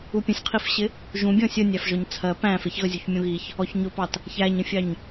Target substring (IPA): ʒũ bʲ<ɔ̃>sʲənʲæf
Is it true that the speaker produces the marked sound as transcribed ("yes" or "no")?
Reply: yes